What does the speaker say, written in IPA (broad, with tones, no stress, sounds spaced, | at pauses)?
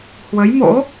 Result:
h w ə˨˦ j m o̰˧˥